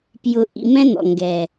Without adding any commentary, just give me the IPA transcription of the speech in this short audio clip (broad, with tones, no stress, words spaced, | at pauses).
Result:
pjʊ˨ ʔḭ˨mɛ̃˧ n̪ɔ̰˨ŋɡɛː˨